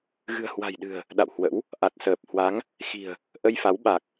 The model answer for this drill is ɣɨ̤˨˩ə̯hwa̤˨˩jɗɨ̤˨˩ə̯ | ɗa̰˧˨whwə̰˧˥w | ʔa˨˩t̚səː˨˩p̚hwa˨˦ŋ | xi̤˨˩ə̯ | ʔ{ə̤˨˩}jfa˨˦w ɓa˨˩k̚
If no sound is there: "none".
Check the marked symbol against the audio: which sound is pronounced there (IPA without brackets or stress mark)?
ə˧